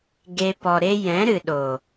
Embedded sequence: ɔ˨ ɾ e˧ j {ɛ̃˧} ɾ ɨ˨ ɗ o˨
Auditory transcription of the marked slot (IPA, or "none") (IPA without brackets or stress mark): ɛ̃˨˦